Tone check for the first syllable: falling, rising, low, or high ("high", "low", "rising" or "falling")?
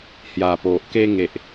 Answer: low